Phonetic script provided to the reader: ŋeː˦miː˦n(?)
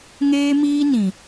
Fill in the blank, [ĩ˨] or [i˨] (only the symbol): ĩ˨